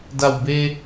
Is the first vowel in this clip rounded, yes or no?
no